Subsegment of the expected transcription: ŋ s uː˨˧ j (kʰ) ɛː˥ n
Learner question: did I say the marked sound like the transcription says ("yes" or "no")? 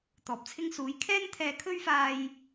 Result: yes